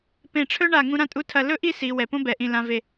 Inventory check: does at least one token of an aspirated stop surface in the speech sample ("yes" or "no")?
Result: yes